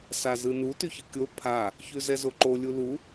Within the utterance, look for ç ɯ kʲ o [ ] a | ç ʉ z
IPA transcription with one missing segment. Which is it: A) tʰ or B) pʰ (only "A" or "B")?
B